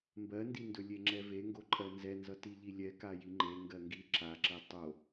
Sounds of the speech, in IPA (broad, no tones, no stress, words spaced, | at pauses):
mbɜndindɵ lʲeŋ͡ǁɛveŋɡo ǃʼɜnzɛnzʌ tiʎilʲɛ kajiŋ͡ǃe ŋɡɜŋɡi ǁaǁɛ tˤo